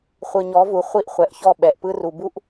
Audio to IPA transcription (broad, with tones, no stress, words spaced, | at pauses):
χʷɯ˨ɲɔ˨˦vu˨ χʷi˦ʔχʷɛ˨ʔçɔ˦˨ ɓɛ˨ʔpɯ˦ru˨bu˦ʔ